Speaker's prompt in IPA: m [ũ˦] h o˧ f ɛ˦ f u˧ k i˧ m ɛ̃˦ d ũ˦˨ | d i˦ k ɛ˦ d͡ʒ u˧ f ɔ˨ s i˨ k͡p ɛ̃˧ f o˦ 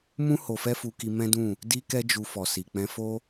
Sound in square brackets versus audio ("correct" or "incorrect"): correct